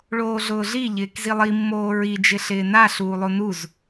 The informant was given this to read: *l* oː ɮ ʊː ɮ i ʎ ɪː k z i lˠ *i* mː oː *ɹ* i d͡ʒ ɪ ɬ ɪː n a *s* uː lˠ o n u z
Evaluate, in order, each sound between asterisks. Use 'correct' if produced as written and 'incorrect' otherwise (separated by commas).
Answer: incorrect, correct, correct, incorrect